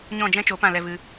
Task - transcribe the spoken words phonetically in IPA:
ɲ ɔ̃˦˨ d͡ʒ ɛ̃˦ t͡ʃ o˨˦ p ã˦˨ l ɛ˧ v ɨ˧

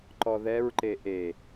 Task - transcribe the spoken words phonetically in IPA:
ǃ ɔ ð ɛ ɹ ǃ e ʔ e

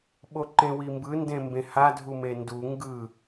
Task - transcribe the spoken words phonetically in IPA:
ɓ o ǃ ẽ w i m b ɯ n d ẽ m b ẽ h a dʱ u m e n d u ŋ ɡ ɯ

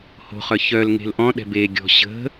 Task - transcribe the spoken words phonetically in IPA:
h o̤ χ œ ç œ l ŋ e̤ l ʔ ɔ̃ ɗ ɛ̤ b e ɡʲ ɔ̤ ɕ ə̤

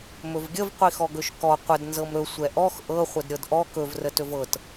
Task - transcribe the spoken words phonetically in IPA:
m ɵ v ɡʲ ə v qʷ i x ɔ ɡ ɵ ʃ k ɔ qʷ ə d n z ɤ m ɾ ɵ sʷ ɛ ʔ ɔ x ʔ ɤ χʷ ə d ɾʲ ɤ d ʔ ɔ k ɵ v r ə t ɵ v ɤ t

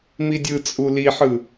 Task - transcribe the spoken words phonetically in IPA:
m i dʲ ɯ t͡sʼ u l i ħ ɯ

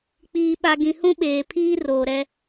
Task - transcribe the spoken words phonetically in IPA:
k͡p iː˨ ɓ a˨ ɡ ĩ˨ h ũ˦ ɓ eː˨ pʰ iː˦ r oː˨ ɾ ɛ˦

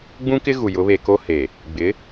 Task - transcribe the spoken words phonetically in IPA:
ɡ͡b ũ˦ k ɪ˦ ɣ u˨ j ʊ˨˦ β e˨ k o˦ h e˨ | ɡ͡b ɪ˨˦

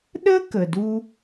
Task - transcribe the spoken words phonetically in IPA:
ɗ ə˦ k ə˨ d u˦

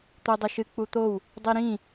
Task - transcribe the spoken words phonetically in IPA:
t̪ o dˤ ɨ ʃ ɨ k͡p u t̪ o w | dˤ i ɾ ĩ

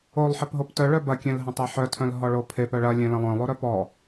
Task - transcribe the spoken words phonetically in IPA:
o lˠ ħ e p ɦ o p t œ ɭ œ b ɐ kʲ ẽ l ɦ ɐ̃ tˤ e ħ œ tʰ œ̃ l ɦ ɔ ɭ o pʰ e p œ ɭ ɐ lʲ ẽ l ɐ̃ lˠ œ̃ lˠ o ɾ œ p ɔ

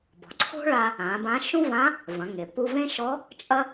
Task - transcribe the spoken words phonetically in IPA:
b ɔ̤˩ ǀʰ o̤˥ ɭ a˧ | ã˩˧ b ã˧˥ ʃ ũ˥ v ã˧˥ | v ɐ̃˩˧ ŋ e˩ p u˧ v ẽ˥ ʃ ɔ˧˥ | t͡ʃʼ ɐ˥

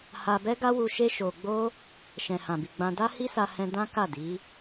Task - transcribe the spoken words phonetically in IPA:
h a˧ b ɛ˦ ɡ a˦ w u˧ ʃ e˦ ʃ o˧ ɡ͡b o˦ | ʃ ɛ̃˨ h ã˨ b i˨ ɡ͡b ã˧ d a˦ h i˦ s a˧ h ɛ̃˧ d ã˦ k a˦˨ d i˨˦

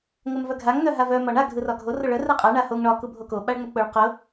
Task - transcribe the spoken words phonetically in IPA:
ŋ ə m v œ ɡʱ a ŋ n œ ɦ a v œ m ɒ ɳ a ɡʱ ɯ r ɒ ɡʱ o r ʊ ɭ œ r ɯ qʼ a ɳ a h o ŋ ɳ ɒ k u bʱ o k o ɓ a ɭ ŋ͡m ə k͡p ʊ ɭ q ʊ

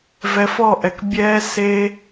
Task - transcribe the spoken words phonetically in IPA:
v ɛ˧ f ɔ˦˨ ʔ ɛ˨ k bʲ ɛː˦ s eː˦

